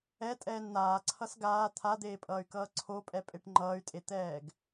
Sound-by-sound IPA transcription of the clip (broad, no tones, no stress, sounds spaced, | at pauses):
ɛ tʼ ɛː n n̪ aː ǀʰ ʌ s ɡ aː t̪ʰ a d̪ eː pʼ ʌː y̯ k ʌː ǀʰ o pʼ ɛ pʼ e ʈ ŋ͡ǃ ʌː y̯ tʼ e t̪ ɛː ɡ